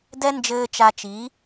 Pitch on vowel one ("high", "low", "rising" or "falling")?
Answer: high